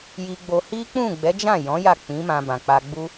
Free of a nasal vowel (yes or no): no